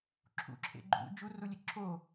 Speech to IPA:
ǁʰ ṵ ǁʰ ḛ ɡ͡ǃ ṵ d͡ʒ u r u lʲ e ǁʰ o

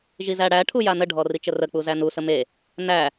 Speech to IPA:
ʒ i z æ ɽ æ ʈʰ u j a n ə ɖʱ ɔ r i t͡ʃ ə r ə k͡p u z æ n u s ə m e | n æ

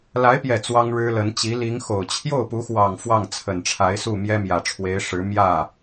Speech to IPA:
l a˧˥ ɪ̯ p j ɛ˨˩ t͡s w ɑ˥ ŋ ɻ ɻ̩˥ l ə˧˥ n t͡ɕ i˧˥ l i˧˥ ŋ x o˨˩ ʊ̯ t͡ɕʰ j o˥˩ ʊ̯ p u˧˥ x w ɑ˨˩ ŋ f w ɑ˥˩ ŋ t͡sʰ ə˨˩ n ʈ͡ʂʰ a˧˥ ɪ̯ s u˥˩ m j ɛ˥ m j ä˨˩ ʈ͡ʂʰ w e˧˥ ɪ̯ ʂ ɻ̩˧˥ m j ä˥˩

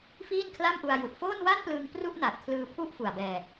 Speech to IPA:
f iː˥˩ n kʰ l a˥˩ m ʔ u˧ a̯ j u˨˩ ʔ f oː˥˩ n w a˥˩ n p l ɯː˧ ŋ p r u˥˩ ʔ n a˨˩ t̚ kʰ l ɯː˧ pʰ u˦˥ ʔ f u˨˩ a̯ b ɛː˧

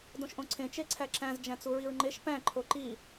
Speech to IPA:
d õ ʃ ʔ õ ǀʰ ẽ t͡ʃ e ǀʰ æ ǁ æ̃ z d͡ʒ æ̃ t͡s u ɹ i ɹ ŋ͡ǃ e ʃ p æ̃ ǃʰ o ǃ i

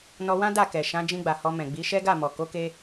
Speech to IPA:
n ɔ˧ w ã˦ d a˦˨ k ɛ˨ ʃ ã˨˦ d͡ʒ ĩ˧ ɡ͡b a˨ h ɔ˧ m ɛ̃˨ ɡ͡b i˨˦ ʃ ɛ˦ ɡ a˦˨ m ɔ˨ k o˨˦ k e˧

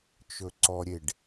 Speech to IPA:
t͡ʃ ɵ ǀ ɔ ɾʲ e ɖ

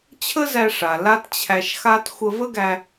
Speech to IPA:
t͡ɕʰ ə˥ z æ˧ ʂ a˩ l a˥ t t͡ɕʰ æ˧ ʃ x a˥ t xʷ ə˧ v ə˥ ɡ æ˧

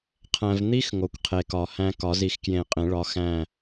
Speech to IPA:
qʰ æ̃˨ v n̪ i˦˥ x ŋ o˨ kʷ qʰ e˨ k ɒ˨˩˦ h æ̃˦˥ k ɒ˨˩˦ z i˨˩˦ x k j ẽ˨˩˦ qʼ ẽ˨˩˦ ɭ ɒ˨˥ x æ̃˦˨

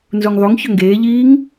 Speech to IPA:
n z u ŋ ðˤ u ŋ ç ɵ ŋ ɡ eː ʎ iː ŋ

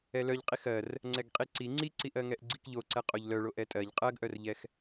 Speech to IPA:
ɛ l œ ʎ qʼ i x ɜ r | ŋ͡ǀ ɛ ɡ qʼ i ǀ i ŋ͡ǀ i ǀ i ʔ ɜ ŋ ɛ ʔ ɡ͡ǀ i k ʎ o ǀ ɛ qʼ o ʎ l œ ɭ o ʔ ɛ tʼ ɜ ʎ qʼ ɜ ɡ ʔ œ r ʎ ɛ x

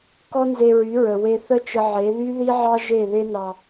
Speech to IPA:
k ɔ˦ n z e˧ ɹ y˨˦ ɹ ə˨ w e˧ θ ə˦ t͡ʃ ə˧ ʕ e˨˦ ð y˦ ð i˦ ʕ ɑ˦ ʒ e˦˨ ð e˦ n ɑ˧

